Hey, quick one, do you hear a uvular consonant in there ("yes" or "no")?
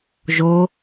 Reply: no